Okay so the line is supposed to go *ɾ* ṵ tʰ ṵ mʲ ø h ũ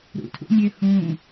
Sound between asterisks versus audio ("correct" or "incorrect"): correct